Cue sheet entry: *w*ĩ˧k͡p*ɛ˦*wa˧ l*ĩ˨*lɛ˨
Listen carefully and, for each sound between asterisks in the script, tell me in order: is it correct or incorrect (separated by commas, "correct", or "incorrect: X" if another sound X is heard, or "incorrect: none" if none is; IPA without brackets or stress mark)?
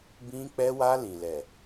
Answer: incorrect: b, incorrect: ɛ˧, correct